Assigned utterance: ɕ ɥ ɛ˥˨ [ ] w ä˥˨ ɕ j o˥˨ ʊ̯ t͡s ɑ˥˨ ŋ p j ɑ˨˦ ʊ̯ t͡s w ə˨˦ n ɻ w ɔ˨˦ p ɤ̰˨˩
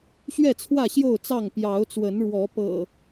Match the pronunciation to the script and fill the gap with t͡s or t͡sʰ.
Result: t͡sʰ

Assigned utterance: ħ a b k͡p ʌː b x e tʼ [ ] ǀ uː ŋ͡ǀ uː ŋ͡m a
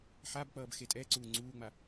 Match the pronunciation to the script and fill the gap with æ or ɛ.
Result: ɛ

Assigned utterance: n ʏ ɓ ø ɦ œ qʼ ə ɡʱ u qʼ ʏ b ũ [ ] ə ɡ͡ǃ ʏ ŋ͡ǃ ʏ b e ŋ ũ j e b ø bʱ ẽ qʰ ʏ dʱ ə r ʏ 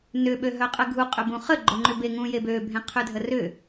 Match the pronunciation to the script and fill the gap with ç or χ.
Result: χ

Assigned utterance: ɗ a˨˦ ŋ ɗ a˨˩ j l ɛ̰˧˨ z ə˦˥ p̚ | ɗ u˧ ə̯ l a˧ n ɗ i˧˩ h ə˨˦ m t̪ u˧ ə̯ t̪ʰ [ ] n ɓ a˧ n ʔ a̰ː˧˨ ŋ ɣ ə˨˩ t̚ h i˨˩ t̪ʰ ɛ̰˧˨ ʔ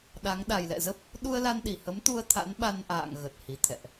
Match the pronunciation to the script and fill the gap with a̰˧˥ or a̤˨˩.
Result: a̰˧˥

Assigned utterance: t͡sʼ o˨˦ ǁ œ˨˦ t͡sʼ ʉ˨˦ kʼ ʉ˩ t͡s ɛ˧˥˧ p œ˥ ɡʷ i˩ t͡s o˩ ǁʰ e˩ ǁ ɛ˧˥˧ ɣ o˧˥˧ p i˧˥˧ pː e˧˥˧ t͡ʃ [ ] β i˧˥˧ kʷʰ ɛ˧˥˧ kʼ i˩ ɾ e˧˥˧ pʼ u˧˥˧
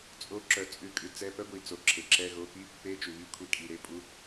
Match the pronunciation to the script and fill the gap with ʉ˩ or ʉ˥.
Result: ʉ˩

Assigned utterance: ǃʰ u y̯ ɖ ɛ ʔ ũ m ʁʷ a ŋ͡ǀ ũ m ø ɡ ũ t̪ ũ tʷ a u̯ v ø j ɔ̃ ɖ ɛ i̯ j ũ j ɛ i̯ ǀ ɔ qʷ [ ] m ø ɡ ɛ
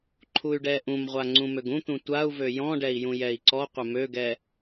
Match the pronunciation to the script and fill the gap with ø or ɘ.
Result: ɘ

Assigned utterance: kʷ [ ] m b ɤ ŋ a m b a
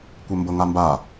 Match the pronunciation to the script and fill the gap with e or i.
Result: e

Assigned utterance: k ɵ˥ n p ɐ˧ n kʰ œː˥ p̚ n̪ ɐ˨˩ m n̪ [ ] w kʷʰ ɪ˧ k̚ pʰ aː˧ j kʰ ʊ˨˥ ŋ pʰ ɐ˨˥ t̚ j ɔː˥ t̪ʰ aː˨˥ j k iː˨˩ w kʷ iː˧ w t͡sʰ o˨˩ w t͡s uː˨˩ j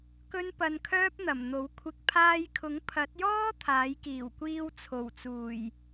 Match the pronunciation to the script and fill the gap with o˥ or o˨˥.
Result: o˨˥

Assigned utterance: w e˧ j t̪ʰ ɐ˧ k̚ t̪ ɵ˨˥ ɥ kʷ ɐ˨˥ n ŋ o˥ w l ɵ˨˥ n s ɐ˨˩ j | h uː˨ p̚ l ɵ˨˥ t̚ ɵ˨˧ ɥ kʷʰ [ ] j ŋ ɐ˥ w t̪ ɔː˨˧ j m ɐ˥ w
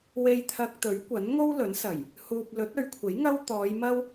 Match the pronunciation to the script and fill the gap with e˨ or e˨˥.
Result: e˨˥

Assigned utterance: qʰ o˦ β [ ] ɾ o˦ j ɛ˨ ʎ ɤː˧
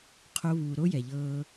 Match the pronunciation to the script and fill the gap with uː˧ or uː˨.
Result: uː˧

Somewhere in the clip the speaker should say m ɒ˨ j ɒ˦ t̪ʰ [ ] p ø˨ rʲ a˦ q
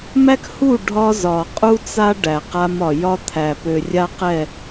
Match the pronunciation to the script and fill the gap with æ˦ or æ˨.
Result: æ˨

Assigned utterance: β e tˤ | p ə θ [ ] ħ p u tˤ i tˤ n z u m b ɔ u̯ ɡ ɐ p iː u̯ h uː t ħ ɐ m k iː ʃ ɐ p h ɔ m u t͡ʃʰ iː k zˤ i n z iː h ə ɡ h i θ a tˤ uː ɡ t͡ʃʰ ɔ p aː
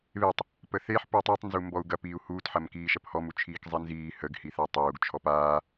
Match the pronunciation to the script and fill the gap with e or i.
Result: e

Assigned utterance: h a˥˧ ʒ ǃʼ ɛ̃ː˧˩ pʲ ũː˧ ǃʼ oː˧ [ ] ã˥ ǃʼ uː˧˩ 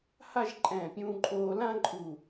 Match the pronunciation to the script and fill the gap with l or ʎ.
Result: l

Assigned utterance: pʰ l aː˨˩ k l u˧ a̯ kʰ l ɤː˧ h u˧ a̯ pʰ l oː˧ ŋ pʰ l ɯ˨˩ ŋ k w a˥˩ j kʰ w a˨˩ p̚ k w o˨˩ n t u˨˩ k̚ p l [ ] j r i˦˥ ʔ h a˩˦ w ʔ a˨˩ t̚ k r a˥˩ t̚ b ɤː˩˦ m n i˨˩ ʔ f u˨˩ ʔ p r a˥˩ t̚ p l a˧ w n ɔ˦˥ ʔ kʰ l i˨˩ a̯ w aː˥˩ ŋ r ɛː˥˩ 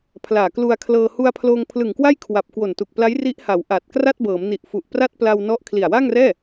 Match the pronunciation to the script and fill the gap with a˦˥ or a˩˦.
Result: a˦˥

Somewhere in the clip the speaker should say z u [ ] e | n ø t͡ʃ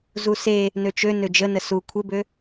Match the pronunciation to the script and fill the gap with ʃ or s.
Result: s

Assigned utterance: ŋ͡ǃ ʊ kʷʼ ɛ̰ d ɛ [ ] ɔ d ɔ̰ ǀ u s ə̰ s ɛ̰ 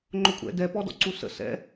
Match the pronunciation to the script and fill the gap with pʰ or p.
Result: p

